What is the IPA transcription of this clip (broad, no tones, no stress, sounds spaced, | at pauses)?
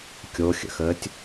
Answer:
kʲ o xʲ ə̰ x əː tʲ